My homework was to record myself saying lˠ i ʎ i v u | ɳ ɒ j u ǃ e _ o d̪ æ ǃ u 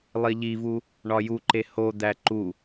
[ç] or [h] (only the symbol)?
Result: h